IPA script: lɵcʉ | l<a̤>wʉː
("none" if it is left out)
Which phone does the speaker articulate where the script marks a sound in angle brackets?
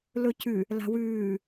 a̤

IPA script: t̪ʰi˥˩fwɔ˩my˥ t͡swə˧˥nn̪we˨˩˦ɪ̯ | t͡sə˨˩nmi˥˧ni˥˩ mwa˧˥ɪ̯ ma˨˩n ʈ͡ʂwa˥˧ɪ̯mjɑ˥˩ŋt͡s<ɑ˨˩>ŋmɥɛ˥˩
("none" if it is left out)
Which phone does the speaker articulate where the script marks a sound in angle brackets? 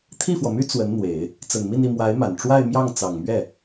ɑ˨˩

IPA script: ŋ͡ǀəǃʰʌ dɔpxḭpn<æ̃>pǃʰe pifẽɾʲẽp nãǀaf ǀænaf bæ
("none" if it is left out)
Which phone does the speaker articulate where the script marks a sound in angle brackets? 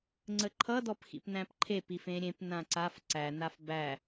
æ̃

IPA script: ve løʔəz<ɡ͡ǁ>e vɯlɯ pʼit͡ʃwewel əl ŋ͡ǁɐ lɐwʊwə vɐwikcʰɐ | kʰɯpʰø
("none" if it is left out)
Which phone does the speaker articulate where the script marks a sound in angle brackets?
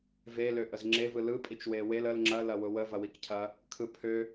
ŋ͡ǁ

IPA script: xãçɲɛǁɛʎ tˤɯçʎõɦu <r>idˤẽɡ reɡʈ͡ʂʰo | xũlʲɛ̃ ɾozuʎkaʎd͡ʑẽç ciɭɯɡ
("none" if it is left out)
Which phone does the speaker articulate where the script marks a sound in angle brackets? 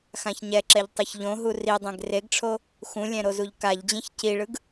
r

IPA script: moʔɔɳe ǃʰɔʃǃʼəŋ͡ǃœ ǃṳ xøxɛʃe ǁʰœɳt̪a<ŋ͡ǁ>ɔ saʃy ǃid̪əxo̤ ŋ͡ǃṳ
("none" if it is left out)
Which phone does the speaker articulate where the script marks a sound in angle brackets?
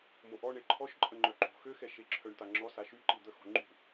ŋ͡ǁ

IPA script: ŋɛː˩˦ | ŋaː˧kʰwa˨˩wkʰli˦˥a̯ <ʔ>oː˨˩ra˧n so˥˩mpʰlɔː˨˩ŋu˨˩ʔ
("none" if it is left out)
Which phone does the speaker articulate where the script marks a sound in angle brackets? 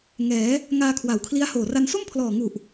h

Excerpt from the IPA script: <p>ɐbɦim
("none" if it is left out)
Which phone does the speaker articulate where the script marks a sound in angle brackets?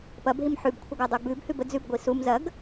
p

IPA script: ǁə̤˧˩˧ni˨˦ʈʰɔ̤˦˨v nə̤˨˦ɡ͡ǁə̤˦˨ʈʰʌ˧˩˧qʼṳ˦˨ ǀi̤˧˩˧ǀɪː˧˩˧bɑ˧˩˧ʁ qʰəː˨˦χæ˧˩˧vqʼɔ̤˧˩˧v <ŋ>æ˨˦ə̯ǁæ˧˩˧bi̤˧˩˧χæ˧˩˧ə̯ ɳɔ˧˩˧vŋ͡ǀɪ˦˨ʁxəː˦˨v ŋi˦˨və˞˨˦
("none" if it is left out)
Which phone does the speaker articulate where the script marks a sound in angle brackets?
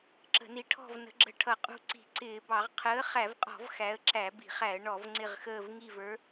x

